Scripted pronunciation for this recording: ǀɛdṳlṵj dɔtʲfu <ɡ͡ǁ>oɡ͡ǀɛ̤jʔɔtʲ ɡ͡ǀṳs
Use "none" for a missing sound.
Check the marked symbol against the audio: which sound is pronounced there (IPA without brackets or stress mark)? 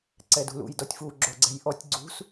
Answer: ɡ͡ǁ